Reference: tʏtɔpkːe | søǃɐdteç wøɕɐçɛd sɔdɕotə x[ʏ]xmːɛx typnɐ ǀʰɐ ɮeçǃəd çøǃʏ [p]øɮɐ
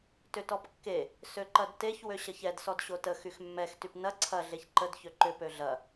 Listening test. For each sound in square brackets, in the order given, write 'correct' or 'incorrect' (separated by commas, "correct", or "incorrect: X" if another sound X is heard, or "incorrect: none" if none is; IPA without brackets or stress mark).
incorrect: y, correct